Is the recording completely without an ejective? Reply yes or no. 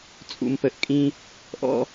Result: no